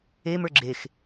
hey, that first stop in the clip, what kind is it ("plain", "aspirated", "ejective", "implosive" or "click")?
click